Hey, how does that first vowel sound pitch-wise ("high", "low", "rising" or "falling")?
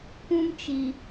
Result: high